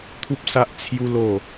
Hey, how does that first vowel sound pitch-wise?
high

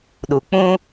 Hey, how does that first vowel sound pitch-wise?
low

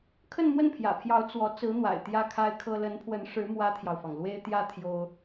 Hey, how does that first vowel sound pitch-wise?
falling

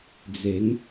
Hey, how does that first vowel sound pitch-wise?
rising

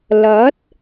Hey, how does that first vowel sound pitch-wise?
rising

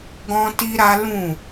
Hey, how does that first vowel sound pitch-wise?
high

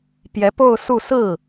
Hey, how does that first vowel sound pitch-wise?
rising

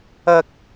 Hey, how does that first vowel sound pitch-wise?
high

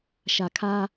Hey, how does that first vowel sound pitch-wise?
low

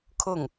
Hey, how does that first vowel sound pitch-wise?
falling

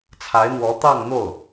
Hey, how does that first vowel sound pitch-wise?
rising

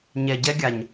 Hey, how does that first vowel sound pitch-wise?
low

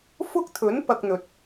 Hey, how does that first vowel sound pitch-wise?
high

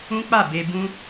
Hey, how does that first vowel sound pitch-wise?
high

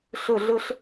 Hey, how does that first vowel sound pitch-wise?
falling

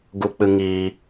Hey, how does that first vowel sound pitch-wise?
high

